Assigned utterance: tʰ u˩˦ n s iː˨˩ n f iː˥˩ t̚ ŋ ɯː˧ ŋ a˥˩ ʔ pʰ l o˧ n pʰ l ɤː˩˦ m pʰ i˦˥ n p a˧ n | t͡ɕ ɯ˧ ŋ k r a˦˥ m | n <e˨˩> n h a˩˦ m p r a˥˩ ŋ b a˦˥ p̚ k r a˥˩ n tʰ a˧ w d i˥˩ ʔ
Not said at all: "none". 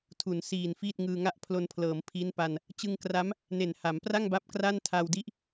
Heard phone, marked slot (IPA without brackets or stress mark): e˨˩